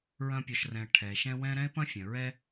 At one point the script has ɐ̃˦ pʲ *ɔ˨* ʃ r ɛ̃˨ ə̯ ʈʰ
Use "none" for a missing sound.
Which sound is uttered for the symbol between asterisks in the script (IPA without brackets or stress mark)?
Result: ɔ˨